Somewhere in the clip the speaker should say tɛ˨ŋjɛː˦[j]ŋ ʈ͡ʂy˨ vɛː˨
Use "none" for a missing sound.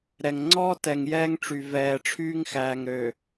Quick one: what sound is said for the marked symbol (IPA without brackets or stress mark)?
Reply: none